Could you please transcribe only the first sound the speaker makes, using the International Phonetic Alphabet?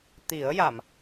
t̪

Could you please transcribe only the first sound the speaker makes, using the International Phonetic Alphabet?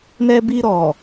n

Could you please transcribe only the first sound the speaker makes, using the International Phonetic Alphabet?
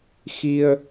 x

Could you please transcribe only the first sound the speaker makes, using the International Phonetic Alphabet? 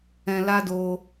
ɛ̃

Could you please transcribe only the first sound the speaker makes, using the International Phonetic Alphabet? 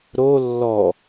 ɾ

